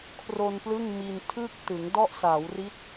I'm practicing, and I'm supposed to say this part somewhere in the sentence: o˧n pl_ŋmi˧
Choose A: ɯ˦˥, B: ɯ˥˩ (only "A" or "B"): B